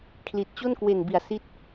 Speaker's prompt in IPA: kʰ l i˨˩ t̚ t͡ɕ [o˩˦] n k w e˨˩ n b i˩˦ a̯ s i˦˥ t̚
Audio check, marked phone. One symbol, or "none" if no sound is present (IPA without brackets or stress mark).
o˥˩